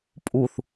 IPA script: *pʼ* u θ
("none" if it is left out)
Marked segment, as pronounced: pʼ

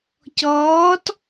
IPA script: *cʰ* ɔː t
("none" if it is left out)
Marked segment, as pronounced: c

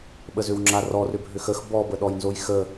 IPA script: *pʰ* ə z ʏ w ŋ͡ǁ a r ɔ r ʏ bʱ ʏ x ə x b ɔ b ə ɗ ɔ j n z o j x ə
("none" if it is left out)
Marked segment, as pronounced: ɓ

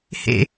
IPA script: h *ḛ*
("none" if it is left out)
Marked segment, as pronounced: ḛ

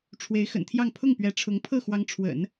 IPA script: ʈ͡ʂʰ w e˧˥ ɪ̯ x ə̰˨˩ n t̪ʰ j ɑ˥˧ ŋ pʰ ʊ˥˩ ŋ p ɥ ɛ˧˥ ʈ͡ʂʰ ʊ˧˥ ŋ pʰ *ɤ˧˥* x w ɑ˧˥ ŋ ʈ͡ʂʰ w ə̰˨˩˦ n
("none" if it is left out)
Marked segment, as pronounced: ɤ˥˩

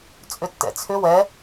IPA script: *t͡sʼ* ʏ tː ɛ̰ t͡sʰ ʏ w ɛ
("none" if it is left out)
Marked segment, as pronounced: t͡sʼ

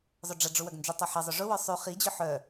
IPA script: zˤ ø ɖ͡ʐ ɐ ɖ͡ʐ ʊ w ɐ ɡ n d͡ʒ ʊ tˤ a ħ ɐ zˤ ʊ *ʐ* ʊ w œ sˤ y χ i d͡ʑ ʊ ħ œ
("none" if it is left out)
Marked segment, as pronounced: ʐ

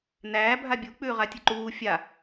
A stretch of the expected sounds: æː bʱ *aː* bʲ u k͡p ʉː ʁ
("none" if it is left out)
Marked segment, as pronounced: a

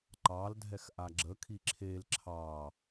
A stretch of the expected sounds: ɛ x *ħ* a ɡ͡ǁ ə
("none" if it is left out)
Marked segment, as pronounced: ʔ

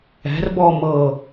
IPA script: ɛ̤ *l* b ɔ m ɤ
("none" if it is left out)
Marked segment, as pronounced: r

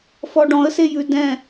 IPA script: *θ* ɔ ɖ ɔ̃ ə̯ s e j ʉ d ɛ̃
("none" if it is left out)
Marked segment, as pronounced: f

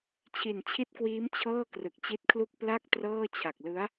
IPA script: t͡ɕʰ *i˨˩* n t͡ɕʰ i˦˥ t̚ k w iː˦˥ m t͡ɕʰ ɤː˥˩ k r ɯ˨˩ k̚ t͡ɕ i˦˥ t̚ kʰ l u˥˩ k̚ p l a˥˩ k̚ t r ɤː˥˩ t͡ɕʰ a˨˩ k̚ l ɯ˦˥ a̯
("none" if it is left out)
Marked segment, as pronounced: i˨˩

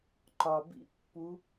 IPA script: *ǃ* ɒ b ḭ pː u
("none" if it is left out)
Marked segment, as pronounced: ǃ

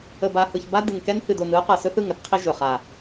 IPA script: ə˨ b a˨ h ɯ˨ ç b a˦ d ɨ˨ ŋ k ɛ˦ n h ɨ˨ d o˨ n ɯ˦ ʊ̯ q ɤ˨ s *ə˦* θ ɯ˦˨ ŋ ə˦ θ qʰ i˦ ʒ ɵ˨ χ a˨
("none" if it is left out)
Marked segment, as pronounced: ɵ˦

